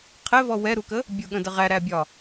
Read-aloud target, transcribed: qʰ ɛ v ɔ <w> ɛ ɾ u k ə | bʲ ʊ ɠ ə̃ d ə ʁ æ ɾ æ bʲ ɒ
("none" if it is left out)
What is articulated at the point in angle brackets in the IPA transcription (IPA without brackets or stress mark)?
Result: w